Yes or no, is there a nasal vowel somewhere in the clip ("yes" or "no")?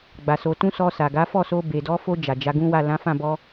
yes